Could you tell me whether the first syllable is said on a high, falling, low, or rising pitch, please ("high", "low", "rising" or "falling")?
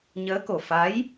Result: rising